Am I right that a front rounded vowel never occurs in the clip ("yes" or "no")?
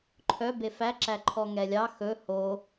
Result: no